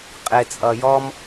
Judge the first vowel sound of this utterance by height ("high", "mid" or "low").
high